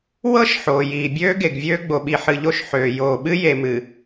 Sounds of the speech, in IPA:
w ɤ˦ ʃ ħ oː˨ j iː˨ bʲ øː˦ ɡ e˨ ɡ vʲ øː˦ ɡ͡b o˨ ɓ i˨ ħ ɨ˨ ʎ o˦˨ ʃ ħ øː˨ j oː˨ ɓ ɨ˦ j e˨ m ɨ˨

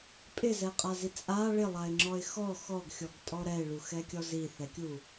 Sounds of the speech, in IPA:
pʼ ɪ z ɛ qʼ a z i t͡sʼ a ɭ ɪ lˠ a ɪ̯ ŋ͡ǁ ɔ ɪ̯ x ɔ x ɔ ɡ xʲ ɔ ɡ tʼ ɔ ɾ ɛ ɪ̯ ɭ u x ɛ kʲ ɔ z i θ ɛ kʲ u

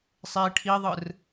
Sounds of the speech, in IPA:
sˤ e i̯ ʈʰ i ðˤ ɯ r

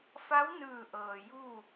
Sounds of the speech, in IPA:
f a˧˥ w n ɯː˧˩ ʔ ɤː˩ j u˥˨

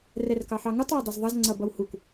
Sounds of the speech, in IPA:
r ɛ r k ɑ ħ ɑ ŋ u tˤ w ʊ dˤ ʌ z ðˤ ʌ z ŋ͡ǀ ʌ b ʌ w h u k

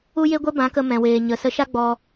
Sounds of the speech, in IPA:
u˦ j e˦ ɡʷ ɛ˦ b ã˨˦ k ə˧ m ɛ̃˨ w eː˨ ɲ ə˨ s ə˨˦ ʃ a˦ ɡ͡b ɔ˧

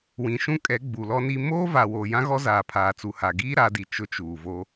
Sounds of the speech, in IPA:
w ĩ˨ ʃ ũ˦ kʼ ɛ˨˦ ɡ͡b u˨ l ɔ˦ n i˦ m oː˦ v a˨ w oː˨ j ã˦ ɣ ɔ˦ z aː˨ pʰ aː˨ t͡s u˨ h a˨ ɡ iː˦ ɾ a˨˦ d i˨ t͡ʃ ʊ˦ t͡ʃ uː˨ v o˦

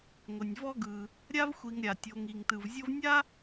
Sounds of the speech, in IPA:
ŋʷ ɪ˩ nʲ v ɔ˦ ɡ ɯ˩ | ɾʲ a˥ v xʷ i˨ ŋ ɾʲ a˩ tʲ o˨ ŋ i˩ ŋ t ɯ˩ v zʲ o˦ v nʲ a˥

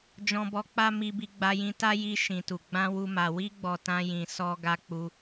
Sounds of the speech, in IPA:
d͡ʒ ɔ̃˧ b ɔ˧ k͡p a˦ m i˧ b i˧ ɡ͡b a˧ j ĩ˧ t a˦ j i˧ ʃ ĩ˨ t u˨ ɡ͡b ã˧ w u˧ m a˨ w i˧ ɡ͡b ɔ˨ t ã˧ j ĩ˨ s ɔ˧ ɡ a˧ k͡p u˧

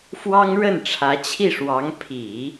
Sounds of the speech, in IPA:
f w ɑ˥ ŋ ɻ ə˥˩ n ʈ͡ʂʰ ä˧˥ t͡ɕʰ i˥˩ ʂ w ɑ˧˥ ŋ pʰ i˨˩˦

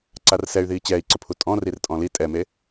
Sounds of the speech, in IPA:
ǀ a r s ɛ y̯ ð iː t͡ɕ ɛː i̯ ǀ ʊ pʰ u tʼ ɔ̃ r i r tʼ ɔ̃ l i tʼ ɛ m e

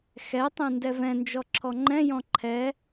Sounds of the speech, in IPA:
x ɛ tˤ ɛ̃ n d ɛ v ɛ̃ n d͡ʒ ɔ ǁʰ ɔ ŋ͡ǃ ɛ̃ j ɔ̃ ǃʰ ɛ

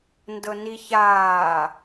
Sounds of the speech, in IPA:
n d ɤ n i ç aː

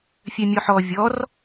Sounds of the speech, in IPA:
fʲ œ mʲ ɔ ħ ɔ vʲ ɔ r

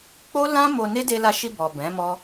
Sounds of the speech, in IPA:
k͡p o˦ l ã˦ m o˧ n e˦ d e˧ l a˧ ʃ i˧ b ɔ˨ b ɛ̃˨˦ m ɔ˦

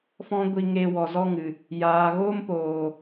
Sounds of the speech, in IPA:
f ɔ̃˦ ɡʷ i˧ ŋ e˧ w ɔ˨ z ɔ˦ ŋ ɨ˨ | j aː˨ ɣ oː˦ m p oː˨

